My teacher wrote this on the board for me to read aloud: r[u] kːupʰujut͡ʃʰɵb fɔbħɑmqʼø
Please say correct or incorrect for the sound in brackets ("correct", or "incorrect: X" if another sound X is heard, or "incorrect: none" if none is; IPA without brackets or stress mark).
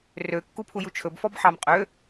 incorrect: ø